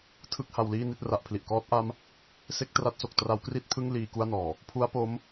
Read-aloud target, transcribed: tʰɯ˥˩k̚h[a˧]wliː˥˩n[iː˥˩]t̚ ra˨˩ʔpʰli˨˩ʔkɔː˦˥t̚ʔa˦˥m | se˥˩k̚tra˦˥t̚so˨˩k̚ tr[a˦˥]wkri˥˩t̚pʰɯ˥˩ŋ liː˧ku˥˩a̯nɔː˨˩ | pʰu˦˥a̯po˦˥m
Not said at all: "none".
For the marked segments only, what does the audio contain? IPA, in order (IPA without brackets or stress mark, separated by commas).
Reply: a˧, i˥˩, a˦˥